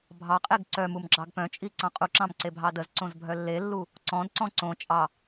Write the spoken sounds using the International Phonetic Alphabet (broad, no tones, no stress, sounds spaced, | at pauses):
bʱ ɑ qʼ e ɡ ǀ œ m u m ɡ͡ǁ ɑ ɡ p œ̃ t͡ʃʼ i ǀ ɑ̃ qʼ u ǁ ɑ̃ m ǀ e bʱ ɑ d ə z ǀ õ z bʱ œ lː e lː u | ǀ ɔ̃ d ǀ ɔ̃ ǀ õ t͡ʃʼ ɑ